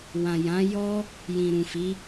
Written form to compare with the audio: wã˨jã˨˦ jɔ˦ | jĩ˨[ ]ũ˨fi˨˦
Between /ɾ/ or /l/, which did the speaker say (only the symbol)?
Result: ɾ